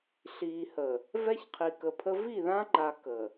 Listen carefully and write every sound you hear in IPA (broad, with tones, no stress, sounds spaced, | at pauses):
ɬ iː˨ h ə˨ | v ɛ˦ ç qʰ i˨ k ə˨ pʰ ə˦ v i˦˨ ð ã˦ ŋ͡ǃ a˨ k ə˨